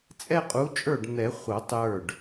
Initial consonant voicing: voiceless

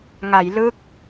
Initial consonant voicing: voiced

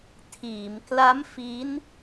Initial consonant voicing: voiceless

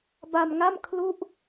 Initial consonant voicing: voiced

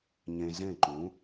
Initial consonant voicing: voiced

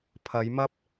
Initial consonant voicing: voiceless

